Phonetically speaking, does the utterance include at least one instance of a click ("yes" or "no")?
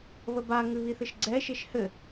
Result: yes